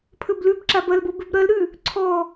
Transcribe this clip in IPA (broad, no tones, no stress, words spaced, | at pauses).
pʰɵblʉbǁa bɐlbo bʉbɾɐlɾʉ | ǀʰɔ